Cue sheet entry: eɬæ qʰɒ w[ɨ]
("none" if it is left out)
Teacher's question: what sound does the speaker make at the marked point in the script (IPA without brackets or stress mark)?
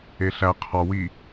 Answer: i